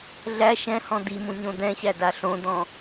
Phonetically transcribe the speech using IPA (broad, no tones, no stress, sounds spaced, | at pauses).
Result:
ɮ æ ʃ ɛ̃ h ɔ̃ d̪ i m ũ ɲ õ d̪ ɛ̃ ɕ æ d a ɬ õ d̪ ɔ̃